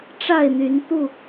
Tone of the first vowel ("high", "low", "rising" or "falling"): falling